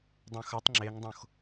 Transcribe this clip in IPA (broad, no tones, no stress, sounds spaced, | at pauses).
dˤ õ x ɐ tˤ ŋ͡ǁ e ŋ dˤ õ x